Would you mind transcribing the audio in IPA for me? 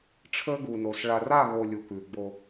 ʈ͡ʂʰ əː˦ ɡ u˨ n o˨ s ɭ a˨ r a˦˨ ɣ o˨ lʲ u˨ k ʉː˨ ɡ͡b o˦

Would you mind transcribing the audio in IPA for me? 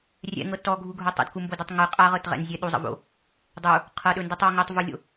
rʲ ɛ̰ ŋ ɤ t ɔ ɡʱ u ɡʱ ɵ tˤ ə̰ d k u m b o d ɛ tˤ ŋ ɯ qʼ a ʁ ɤ t ʁ ɛ̰ n zʲ ɛ ɗ u zˤ ə̰ v o̰ | dˤ u | qʰ ɤ ɗ ɵ n d ɯ tˤ ɔ ŋ u tˤ v u lʲ o̰

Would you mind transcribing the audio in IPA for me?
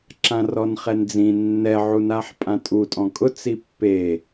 ǁ ã r ɔ n χ ɛ n d͡z ĩ nː ɛ ʕ u n a ħ pʼ ã tʼ u tʼ ɔ̃ kʼ ʊ t͡s i pː e

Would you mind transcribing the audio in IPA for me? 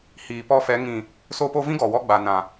h iː˨ p ɔ˧ f ɛ˨˦ ŋ ĩ˨ | s o˧ p o˧ v ĩ˦ ɡ ɔ˨ w ɔ˧ ɡ͡b a˨ n ã˨

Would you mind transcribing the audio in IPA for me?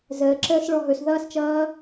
z əː ǁ əː s ɭ ɔ ɦ ɵ s ð ʌː s t͡ʃ ʌː

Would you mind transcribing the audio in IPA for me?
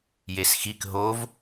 j e s x i k ɦ o v

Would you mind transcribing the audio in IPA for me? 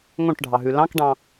ŋ õ ʈ ɖʱ ɑ ɦ ʉ l ɑ̃ k ɖ ɑ̃

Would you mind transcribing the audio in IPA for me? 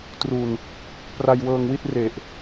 t r u˨˩ n | p r a˧ j w ɤː˧ ŋ w i˥˩ t̚ r e˨˩ ʔ

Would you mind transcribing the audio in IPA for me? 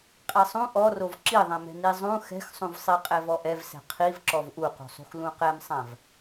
qʼ ɛ sˤ ũ ʔ ɔ r o v ǁ i ðˤ ɛ̃ m ɛ̤ n i zˤ ũ x ɛ̤ x sˤ ũ v sˤ i qʼ ɛ v ɔ ʔ ɛ v s ɛ̤ qʰ i v ǁ ɔ v ʔ u q ṳ sˤ ṳ x l ũ q ɛ m sˤ ã v

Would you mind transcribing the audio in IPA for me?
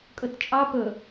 kʼ ɵ t t͡ʃʼ ɑ p ɵ

